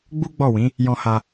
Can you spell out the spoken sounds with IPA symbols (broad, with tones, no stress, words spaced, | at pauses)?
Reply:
ɡ͡bu˦ɡ͡bɔ˦˨wĩ˨˦ | jɔ̃˧ ha˧